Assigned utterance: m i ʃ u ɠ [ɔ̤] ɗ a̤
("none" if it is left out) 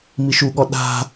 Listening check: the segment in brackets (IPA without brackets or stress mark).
ɔ